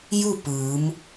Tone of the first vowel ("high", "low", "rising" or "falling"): falling